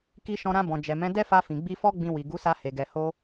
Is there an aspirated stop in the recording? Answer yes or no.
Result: no